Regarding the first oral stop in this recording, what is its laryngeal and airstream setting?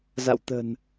plain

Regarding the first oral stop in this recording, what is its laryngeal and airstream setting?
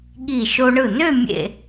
implosive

